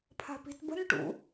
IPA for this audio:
pʰ a̤ p i̤ t b ə̤ n ʈ ṵ

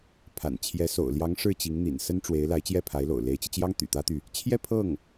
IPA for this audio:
pʰ a̰˨˩ n t͡ɕʰ j ɛ˧˥ s o̰˨˩ ʊ̯ l j ɑ˧˥ ŋ ʂ ɻ̩˥˩ t͡ɕ i˧˥ ŋ n̪ ḭ˨˩ n s ə˥ n ʈ͡ʂ w e˧˥ ɪ̯ l a˧˥ ɪ̯ t͡ɕ j ɛ˥˩ pʰ a˧˥ ɪ̯ l o̰˨˩ ʊ̯ l e˧˥ ɪ̯ t͡ɕ i˧ t͡ɕ j ɑ˥ ŋ t̪ y̰˨˩ t̪ ä˥ t̪ y˨ | t͡ɕʰ j ɛ˥˧ pʰ ɤ˥˩ ŋ

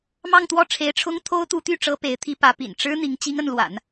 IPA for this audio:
m ɑ˥˧ ŋ t̪ w ɔ˥˩ ʈ͡ʂʰ e˧˥ ɪ̯ ʈ͡ʂʰ ʊ˥ ŋ t̪ʰ o˥ ʊ̯ t̪ u˧˥ t̪ y˥˩ ʈ͡ʂ ɤ˥ p e˧˥ ɪ̯ t̪ʰ i˥ p ä˧˥ p ḭ˨˩ n ʈ͡ʂ ɻ̩˥ n̪ i˧˥ ŋ t͡ɕ i˥ ŋ ə˥˩ n l w a̰˨˩˦ n

